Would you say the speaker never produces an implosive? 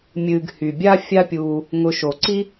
yes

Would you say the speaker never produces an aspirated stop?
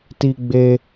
yes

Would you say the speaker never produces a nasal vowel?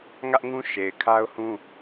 no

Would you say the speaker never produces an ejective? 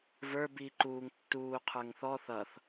yes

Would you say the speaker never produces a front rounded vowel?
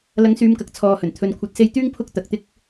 no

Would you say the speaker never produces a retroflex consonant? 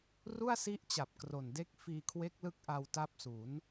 yes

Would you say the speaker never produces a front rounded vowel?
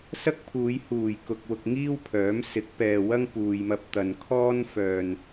no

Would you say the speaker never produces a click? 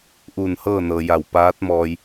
yes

